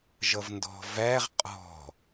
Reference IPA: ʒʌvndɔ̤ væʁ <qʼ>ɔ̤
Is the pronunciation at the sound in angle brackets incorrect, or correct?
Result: correct